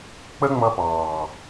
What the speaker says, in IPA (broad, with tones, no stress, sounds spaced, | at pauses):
k͡p ə˦ ŋ͡m ʌ˧ p ɑː˨